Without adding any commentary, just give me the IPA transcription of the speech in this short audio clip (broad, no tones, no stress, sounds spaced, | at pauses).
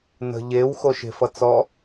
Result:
n ə̤ ʎ e w x o ʃ e̤ f ʌ t͡s ɔ